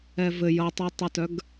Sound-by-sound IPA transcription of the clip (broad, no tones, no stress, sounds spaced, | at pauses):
ɛ v ɘ j ʌ tˤ i tˤ ɘ t œ ɡ